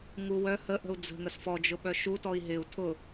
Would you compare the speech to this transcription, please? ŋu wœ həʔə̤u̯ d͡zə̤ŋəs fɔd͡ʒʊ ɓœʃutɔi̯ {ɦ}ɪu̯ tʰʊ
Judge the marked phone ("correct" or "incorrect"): correct